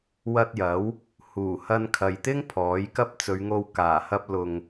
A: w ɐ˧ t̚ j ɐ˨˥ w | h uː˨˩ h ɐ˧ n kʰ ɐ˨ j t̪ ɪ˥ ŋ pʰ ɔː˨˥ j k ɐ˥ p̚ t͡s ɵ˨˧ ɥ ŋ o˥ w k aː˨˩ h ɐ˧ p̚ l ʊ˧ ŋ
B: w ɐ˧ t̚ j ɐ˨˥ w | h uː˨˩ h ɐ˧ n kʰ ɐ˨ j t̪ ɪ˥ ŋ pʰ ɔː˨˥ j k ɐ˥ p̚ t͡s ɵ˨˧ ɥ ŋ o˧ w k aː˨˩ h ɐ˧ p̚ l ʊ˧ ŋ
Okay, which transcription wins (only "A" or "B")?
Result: B